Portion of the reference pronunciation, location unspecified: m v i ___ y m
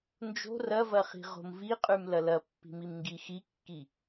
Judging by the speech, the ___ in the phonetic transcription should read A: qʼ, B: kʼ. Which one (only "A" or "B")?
A